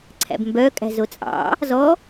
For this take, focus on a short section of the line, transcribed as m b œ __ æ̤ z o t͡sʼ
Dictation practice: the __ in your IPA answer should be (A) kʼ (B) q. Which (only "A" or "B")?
A